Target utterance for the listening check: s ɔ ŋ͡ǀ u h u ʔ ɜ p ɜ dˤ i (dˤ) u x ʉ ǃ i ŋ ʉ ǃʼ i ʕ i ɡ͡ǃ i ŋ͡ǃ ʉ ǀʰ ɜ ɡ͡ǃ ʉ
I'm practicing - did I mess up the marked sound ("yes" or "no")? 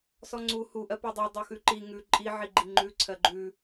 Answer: no